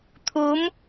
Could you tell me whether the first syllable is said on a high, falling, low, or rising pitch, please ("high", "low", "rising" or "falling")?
rising